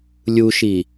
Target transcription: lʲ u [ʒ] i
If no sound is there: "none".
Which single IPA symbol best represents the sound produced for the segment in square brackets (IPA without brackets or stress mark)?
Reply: ʃ